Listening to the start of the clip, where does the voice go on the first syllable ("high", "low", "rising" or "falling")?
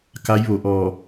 rising